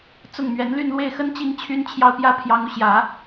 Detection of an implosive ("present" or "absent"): absent